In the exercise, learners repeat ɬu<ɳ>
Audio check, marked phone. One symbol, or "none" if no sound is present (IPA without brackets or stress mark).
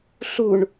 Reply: ɳ